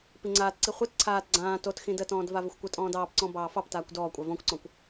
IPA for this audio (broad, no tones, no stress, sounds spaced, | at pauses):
p i ŋ͡ǀ aː t ǀ i χʷ i t ǀʰ aː t ɡ͡ǀ ãː t o t x ĩ d ə t ɔ̃ː d v a v ə xʷ kʷ ə tʼ ɔ̃ː d ɑː p ǀ ɔ̃ b ɑː f ɑ p t aː kʷ d ɔː kʷʼ a v ɔ̃ kʷ ǀ ɔ̃ kʷ